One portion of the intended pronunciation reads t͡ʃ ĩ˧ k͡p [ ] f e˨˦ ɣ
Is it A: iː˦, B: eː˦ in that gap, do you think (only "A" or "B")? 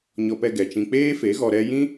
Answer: B